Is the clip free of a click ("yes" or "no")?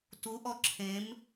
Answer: no